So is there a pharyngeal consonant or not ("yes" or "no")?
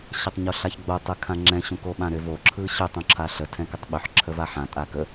yes